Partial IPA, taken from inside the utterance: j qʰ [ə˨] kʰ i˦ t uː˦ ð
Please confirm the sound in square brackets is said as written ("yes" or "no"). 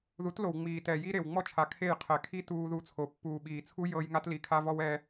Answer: no